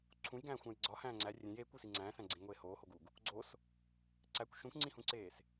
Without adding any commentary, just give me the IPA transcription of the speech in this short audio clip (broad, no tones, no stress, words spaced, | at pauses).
ǀʰũjɡæ̃ːxʷæ̃j ɡ͡ǀɒhæ̃ː ŋ͡ǀæ rʲẽj eːkʷusi ŋ͡ǀæ̃ːsæ̃ɡ͡ǀẽɡŋʷeː hoːhoɡuɡ | ɡ͡ǀos | ǀækʷ ʃũkʷŋ͡ǀĩhũǀeːs